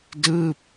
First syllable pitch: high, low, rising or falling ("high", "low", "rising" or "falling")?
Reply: falling